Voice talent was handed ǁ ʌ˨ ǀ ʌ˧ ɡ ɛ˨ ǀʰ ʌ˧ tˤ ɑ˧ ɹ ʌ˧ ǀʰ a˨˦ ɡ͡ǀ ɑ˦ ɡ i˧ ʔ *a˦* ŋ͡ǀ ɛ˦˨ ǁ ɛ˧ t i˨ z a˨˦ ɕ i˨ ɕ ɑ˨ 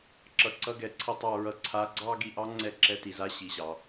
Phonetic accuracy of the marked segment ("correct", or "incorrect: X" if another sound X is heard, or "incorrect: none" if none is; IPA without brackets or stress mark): incorrect: ɑ˦